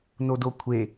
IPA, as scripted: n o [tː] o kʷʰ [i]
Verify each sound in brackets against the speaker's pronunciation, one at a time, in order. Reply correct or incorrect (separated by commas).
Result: incorrect, incorrect